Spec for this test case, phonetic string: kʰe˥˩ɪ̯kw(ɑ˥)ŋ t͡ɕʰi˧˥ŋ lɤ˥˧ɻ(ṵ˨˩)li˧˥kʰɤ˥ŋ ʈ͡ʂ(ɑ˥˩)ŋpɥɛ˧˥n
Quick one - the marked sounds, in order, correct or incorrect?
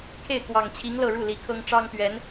incorrect, incorrect, incorrect

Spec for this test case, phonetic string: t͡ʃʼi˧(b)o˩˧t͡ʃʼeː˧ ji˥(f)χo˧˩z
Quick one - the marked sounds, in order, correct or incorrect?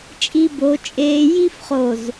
correct, correct

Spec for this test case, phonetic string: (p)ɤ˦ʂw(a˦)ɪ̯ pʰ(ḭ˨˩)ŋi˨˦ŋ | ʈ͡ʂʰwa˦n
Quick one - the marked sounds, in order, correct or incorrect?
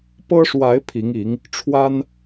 correct, incorrect, incorrect

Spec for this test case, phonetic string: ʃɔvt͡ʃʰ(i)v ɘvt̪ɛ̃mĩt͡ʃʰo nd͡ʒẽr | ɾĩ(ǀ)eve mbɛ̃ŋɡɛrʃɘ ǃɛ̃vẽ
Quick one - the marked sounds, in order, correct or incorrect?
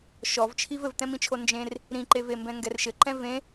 correct, incorrect

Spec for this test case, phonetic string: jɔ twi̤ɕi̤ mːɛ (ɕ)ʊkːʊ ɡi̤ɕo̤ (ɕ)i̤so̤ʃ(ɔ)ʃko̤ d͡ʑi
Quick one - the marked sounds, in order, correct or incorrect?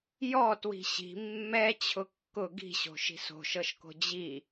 incorrect, incorrect, incorrect

